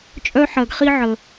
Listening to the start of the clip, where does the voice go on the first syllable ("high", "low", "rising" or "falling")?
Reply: high